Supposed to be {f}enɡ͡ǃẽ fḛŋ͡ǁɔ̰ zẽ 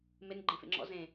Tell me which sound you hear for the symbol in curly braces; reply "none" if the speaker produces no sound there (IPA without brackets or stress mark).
m